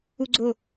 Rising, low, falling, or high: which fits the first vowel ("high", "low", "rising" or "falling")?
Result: high